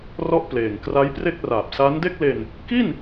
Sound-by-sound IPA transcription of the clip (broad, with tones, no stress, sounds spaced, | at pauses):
r ɔ˥˩ ʔ p l eː˨˩ ŋ k r a˦˥ j p r e˥˩ k̚ r aː˨˩ p̚ s a˦˥ n d e˥˩ k̚ l e˧ n | k i˥˩ n